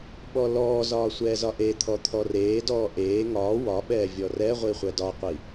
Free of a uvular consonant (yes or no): no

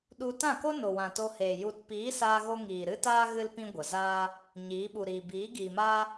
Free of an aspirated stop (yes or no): yes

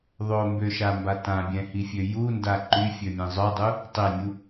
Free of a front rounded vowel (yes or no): no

